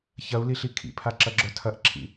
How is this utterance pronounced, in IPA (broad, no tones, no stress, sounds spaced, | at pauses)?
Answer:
ç ɐ u̯ l i ɬ i kʰ ḭ pʰ a ǁ ɐ ɡ͡ǁ œ tʰ ɐ ʔ ǁʰ ḭ